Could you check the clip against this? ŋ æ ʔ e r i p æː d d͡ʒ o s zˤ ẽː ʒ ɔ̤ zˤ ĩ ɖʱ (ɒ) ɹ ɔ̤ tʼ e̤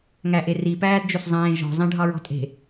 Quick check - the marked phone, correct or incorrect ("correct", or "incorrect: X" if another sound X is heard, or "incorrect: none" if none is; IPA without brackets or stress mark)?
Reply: incorrect: ɑ